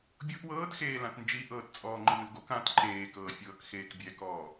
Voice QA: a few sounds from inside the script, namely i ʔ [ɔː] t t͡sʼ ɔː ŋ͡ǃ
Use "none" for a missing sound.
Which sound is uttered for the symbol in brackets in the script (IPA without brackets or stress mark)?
ɤː